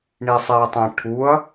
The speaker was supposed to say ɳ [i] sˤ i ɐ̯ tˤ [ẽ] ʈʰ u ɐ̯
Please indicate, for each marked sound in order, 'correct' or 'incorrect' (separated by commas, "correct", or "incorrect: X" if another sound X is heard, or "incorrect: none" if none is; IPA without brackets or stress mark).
correct, correct